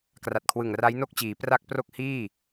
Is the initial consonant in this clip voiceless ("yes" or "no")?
yes